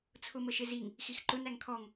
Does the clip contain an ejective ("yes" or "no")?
no